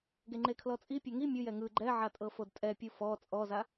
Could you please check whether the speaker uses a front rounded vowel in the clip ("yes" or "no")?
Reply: no